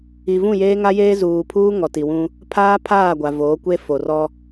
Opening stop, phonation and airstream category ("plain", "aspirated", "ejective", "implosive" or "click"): aspirated